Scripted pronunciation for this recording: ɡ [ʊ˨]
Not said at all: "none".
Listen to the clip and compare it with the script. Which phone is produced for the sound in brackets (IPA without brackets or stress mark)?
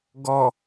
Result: ɔ˨